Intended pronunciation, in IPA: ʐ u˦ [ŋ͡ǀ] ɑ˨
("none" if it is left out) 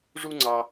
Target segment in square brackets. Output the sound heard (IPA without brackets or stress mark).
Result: ŋ͡ǀ